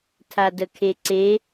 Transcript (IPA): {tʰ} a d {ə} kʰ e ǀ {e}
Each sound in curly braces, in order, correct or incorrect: correct, correct, correct

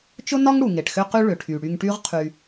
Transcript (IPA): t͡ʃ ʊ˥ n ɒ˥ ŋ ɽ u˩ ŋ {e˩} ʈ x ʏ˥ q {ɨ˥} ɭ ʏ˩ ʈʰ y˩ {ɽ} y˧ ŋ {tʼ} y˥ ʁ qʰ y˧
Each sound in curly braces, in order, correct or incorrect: correct, incorrect: y˥, correct, incorrect: ʈ

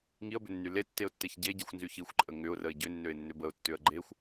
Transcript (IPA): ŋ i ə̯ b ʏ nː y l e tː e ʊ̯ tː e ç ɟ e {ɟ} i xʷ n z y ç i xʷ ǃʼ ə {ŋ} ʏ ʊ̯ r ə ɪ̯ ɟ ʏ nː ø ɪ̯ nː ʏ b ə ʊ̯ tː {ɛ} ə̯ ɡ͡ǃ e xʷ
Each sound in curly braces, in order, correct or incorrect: correct, correct, incorrect: ʏ

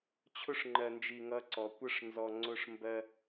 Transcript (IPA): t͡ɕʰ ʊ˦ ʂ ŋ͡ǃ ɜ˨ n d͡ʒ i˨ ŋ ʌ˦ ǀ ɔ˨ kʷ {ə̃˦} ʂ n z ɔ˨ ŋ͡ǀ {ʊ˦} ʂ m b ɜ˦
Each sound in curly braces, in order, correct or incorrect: incorrect: ə˦, correct

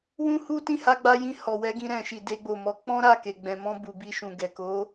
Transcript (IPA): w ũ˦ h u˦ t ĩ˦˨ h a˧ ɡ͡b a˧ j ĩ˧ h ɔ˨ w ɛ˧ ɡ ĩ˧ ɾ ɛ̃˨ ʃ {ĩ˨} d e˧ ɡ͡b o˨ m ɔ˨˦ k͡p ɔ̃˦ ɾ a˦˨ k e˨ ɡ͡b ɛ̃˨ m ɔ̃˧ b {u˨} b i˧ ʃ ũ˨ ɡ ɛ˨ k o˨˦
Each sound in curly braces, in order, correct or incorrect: incorrect: i˨, correct

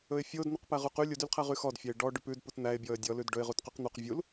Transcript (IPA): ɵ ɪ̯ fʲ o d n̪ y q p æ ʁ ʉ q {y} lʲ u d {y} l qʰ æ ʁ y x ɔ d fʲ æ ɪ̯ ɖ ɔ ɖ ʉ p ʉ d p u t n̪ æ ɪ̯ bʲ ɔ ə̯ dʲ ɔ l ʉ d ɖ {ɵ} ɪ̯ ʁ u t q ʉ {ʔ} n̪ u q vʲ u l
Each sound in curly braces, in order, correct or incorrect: correct, correct, correct, incorrect: q

